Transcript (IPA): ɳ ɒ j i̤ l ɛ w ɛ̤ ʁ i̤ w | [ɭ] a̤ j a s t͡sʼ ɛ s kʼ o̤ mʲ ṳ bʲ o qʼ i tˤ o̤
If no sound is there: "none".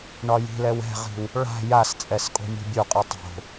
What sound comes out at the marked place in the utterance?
ɭ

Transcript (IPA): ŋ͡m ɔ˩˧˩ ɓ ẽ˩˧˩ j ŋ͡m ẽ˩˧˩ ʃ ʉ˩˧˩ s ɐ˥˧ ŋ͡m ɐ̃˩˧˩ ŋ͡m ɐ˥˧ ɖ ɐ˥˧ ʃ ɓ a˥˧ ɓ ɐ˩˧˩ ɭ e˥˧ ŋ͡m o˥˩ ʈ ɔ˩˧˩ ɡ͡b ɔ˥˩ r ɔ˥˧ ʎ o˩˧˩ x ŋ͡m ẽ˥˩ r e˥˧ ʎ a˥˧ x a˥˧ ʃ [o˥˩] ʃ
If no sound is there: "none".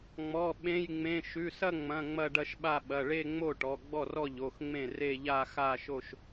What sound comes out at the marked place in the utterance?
o˥˧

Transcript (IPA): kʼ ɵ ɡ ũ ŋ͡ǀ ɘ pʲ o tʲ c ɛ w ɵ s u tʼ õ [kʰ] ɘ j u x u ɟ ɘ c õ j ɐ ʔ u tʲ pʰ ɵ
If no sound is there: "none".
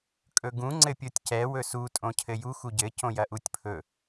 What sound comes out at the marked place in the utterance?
cʰ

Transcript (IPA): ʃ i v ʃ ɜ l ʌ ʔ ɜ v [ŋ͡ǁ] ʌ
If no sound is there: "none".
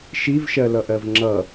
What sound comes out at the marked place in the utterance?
ŋ͡ǁ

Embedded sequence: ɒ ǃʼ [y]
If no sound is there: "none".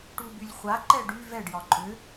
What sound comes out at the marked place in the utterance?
ʏ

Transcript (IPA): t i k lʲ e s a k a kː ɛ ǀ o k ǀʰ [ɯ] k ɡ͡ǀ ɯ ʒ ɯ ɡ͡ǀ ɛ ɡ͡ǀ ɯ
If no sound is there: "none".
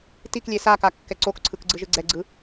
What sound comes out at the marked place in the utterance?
ɯ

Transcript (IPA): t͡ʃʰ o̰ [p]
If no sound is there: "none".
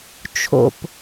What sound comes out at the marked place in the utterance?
p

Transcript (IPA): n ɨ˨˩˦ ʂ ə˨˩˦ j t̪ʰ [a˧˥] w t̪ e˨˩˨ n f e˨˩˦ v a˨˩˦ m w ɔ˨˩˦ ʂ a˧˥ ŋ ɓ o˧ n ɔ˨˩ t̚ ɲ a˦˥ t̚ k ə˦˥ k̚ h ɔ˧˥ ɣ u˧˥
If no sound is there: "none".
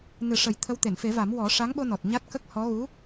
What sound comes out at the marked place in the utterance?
ə˧˥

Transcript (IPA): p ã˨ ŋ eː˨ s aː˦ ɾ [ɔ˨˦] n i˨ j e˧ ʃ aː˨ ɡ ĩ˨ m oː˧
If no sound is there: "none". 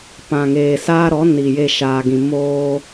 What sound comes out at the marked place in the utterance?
ɔ˨˦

